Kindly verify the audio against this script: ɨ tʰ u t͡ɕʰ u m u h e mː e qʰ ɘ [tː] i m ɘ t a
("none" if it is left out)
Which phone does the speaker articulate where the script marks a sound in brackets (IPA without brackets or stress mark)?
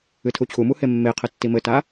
tː